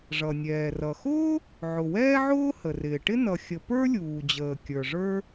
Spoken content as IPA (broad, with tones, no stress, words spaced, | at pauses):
ʐʌ˩nʲɛː˩rʌ˩xʊː˥ | ʕʊ˩wɛː˥ʕʊː˥ hə˩rɪː˩ʈɪ˥ nʌ˩xʲə˩ pə˞˥lʲuː˩d͡ʑəː˩ kʲə˞˩ʐə˞˥